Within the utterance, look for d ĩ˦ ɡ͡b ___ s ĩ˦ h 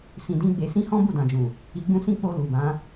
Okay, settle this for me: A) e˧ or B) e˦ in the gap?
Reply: A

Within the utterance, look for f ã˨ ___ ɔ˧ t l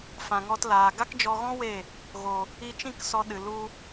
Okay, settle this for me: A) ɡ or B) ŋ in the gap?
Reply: B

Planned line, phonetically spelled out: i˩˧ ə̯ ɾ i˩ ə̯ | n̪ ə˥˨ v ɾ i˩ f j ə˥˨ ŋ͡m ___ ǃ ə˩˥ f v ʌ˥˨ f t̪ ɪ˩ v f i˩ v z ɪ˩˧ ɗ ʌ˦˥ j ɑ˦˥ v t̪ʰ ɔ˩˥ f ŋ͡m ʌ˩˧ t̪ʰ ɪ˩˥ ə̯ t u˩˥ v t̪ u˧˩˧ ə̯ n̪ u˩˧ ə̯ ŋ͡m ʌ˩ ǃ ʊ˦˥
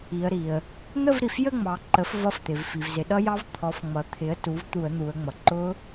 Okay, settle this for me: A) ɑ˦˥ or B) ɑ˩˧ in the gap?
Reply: B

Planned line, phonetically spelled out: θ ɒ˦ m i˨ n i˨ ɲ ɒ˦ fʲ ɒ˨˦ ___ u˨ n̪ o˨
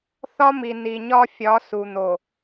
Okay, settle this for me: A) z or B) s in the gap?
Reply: B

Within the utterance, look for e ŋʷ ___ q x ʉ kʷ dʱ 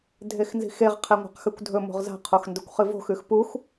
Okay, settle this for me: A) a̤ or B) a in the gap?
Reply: A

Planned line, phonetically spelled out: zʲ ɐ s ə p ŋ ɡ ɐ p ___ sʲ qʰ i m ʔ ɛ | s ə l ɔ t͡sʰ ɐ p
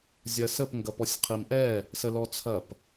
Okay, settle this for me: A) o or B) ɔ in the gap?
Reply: B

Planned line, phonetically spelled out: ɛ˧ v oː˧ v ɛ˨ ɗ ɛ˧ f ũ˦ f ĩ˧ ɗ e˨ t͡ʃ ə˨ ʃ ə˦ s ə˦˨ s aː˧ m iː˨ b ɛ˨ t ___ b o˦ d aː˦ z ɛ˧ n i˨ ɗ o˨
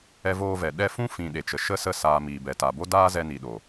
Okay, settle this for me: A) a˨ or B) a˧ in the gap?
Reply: A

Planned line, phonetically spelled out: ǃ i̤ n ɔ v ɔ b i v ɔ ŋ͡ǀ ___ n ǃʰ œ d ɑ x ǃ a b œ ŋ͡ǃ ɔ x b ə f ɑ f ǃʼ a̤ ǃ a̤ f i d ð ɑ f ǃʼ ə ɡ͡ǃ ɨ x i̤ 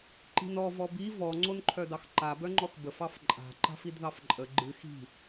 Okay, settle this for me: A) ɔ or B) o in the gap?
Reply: B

